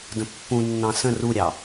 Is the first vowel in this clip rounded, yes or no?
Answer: no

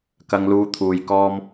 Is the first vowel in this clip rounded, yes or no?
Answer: no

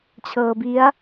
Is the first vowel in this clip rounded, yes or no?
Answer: no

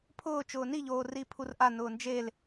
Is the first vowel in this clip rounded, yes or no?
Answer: yes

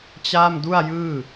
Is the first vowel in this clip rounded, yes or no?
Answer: no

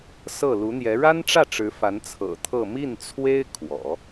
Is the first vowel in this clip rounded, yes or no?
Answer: no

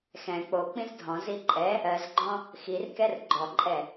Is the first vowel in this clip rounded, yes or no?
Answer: no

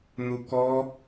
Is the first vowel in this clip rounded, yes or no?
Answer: yes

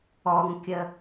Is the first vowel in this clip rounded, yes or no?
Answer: yes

